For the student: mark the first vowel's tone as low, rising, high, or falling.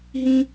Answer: high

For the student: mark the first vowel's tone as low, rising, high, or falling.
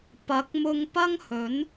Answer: rising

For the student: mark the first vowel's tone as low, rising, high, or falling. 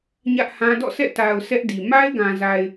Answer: high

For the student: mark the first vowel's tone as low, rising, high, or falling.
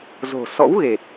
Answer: low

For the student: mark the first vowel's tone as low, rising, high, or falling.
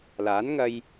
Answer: rising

